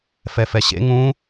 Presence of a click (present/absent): absent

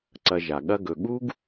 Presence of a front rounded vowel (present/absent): absent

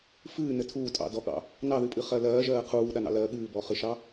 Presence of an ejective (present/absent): present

